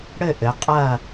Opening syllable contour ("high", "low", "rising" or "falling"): falling